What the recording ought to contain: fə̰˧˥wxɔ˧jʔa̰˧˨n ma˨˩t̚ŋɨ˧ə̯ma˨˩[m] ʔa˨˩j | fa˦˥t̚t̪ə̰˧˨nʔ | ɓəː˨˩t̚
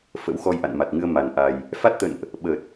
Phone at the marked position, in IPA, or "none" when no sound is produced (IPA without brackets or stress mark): n